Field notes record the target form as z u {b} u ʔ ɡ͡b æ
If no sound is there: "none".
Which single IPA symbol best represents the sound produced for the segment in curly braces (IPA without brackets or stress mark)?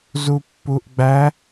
pː